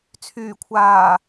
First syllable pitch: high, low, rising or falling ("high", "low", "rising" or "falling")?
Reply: low